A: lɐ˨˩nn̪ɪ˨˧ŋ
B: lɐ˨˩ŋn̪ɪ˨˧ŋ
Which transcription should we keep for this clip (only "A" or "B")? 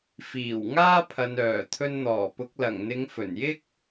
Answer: B